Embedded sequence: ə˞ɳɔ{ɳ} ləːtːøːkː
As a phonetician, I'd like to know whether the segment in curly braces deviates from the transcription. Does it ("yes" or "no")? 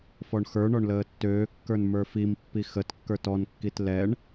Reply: no